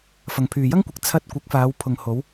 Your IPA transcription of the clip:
f ɐ˨ ŋ pʰ yː˨ j ɐ˥ ŋ kʷ ɪ˨˥ k̚ t͡sʰ ɐ˧ t̚ kʷ ɪ˨˥ k̚ f aː˨˧ w pʰ ʊ˨ ŋ h o˨˧ w

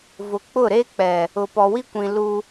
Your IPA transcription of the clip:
v ʊ˨ k͡p ʊ˦˨ ɾ e˦ k͡p ɛ˨ | ʊ˨ p ɔ˨ w i˦ kʷ ĩ˨ l u˦

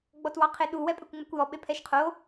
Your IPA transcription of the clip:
ɡ͡b ɔ t w ɑ qʰ e ɗ u w ɛ pʼ ɛ kʷ ŋ͡m ɛ kʷ j ɔ ɓ e pʰ ɛ ʃ qʰ o

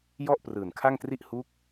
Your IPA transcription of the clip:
j ɔ˥˩ ʔ p r ɯː˨˩ n kʰ a˥˩ ŋ t r i˥˩ ʔ h u˦˥ k̚

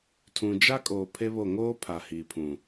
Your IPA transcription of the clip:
tʰ ũ˨ d͡ʒ a˦ kʼ oː˨ pʰ e˦ β o˦˨ ŋ oː˦ pʰ a˨ h iː˨ pʰ ũ˨

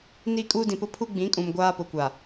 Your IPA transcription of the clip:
n iː˦ kʼ uː˦ d ĩ˨ p ʊ˦ pʰ u˦ ɡ͡b ĩ˨˦ kʼ ũ˨ m ɡʷ aː˦ p ʊ˨ kʷ a˨

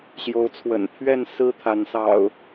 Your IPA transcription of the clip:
ɕ j o˨˦ ʊ̯ t͡sʰ w ə̰˨˩ n pʰ ɥ ɛ˥˨ n s ɹ̩˦ t̪ʰ a˨˦ n s ɑ̰˨˩ ʊ̯

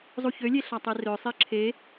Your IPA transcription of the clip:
zˤ u ç ø lʲ e ɬ ɑ tˤ e r ø sˤ e ǁʰ e

